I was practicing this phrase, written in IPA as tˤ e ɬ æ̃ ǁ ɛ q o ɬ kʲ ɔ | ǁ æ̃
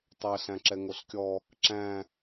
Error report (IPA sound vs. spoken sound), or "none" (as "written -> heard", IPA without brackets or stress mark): q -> ŋ